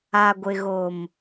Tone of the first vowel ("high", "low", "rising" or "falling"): low